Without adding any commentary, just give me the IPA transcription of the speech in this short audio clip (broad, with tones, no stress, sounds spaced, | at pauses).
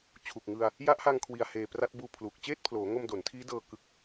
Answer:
t͡ɕʰ u˨˩ k̚ ŋ ɯ˧ a̯ | j a˦˥ ʔ h a˧ ŋ kʰ w i˨˩ a̯ h eː˨˩ p r a˦˥ t̚ b uː˧ pʰ l uː˨˩ k̚ t͡ɕ eː˥˩ t̚ pʰ l oː˩˦ ŋ o˧ m d o˩˦ n tʰ iː˦˥ d ɤː˧ k ɯ˦˥ k̚